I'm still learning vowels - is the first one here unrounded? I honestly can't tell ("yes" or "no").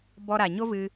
no